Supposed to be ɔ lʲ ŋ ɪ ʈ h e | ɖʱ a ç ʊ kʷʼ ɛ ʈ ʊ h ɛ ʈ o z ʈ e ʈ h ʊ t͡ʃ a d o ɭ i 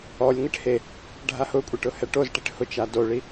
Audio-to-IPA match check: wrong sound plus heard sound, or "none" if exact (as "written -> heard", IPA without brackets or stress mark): ç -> h